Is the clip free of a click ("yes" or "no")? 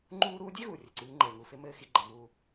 no